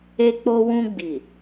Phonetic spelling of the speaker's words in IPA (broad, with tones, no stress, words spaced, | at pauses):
e˧k͡po˧wũ˧ɡ͡bi˨